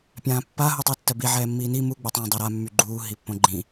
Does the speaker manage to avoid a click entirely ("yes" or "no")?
no